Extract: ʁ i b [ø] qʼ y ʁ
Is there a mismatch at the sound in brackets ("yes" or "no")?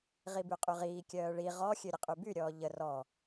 yes